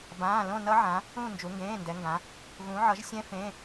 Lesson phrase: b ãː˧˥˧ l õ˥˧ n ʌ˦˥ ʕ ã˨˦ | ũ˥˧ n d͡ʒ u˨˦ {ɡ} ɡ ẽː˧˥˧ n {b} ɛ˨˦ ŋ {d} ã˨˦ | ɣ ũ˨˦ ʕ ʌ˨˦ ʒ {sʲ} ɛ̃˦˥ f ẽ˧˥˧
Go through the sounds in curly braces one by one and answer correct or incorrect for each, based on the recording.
incorrect: ŋ, incorrect: d, incorrect: ɡ, correct

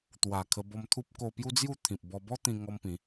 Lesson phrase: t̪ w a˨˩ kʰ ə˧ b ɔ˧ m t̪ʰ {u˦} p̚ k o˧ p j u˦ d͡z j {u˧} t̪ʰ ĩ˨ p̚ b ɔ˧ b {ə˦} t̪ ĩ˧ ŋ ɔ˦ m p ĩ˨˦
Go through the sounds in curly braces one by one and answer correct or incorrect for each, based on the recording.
correct, incorrect: u˥˧, incorrect: ɔ˦

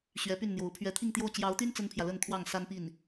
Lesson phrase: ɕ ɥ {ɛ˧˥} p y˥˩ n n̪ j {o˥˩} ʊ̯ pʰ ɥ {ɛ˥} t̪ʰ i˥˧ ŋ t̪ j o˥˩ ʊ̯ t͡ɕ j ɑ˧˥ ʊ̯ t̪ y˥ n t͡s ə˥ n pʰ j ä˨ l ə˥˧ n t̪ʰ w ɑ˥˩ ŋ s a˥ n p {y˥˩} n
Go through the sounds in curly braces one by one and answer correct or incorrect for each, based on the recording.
correct, incorrect: o˧˥, incorrect: ɛ˧˥, incorrect: i˥˩

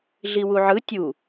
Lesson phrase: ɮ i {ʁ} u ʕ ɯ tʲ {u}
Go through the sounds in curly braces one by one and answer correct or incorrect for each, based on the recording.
incorrect: w, correct

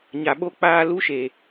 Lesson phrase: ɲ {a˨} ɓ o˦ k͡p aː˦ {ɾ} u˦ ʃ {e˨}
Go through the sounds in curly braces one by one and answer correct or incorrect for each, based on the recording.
correct, incorrect: l, correct

